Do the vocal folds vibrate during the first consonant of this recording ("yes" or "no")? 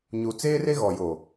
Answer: yes